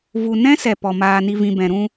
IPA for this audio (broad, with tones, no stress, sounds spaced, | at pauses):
v u˧ n ɛ̃˦ s ɛ˨ p ɔ˨ m aː˨ n i˨ v ĩ˨ b ɛ̃˨ ɾ ũ˧